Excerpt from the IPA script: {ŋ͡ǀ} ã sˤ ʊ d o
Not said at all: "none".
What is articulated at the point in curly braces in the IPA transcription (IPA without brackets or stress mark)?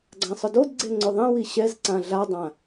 ɡ͡ǀ